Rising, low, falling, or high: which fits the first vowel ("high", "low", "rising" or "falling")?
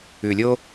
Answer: low